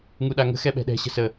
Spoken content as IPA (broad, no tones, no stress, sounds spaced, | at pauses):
ŋ u ɗ a ŋ ə̤ x ɛ ɓ ɛ̤ ɗ ɛ̤ ɕ ə̤ s ə